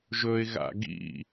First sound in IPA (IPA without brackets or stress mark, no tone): ʒ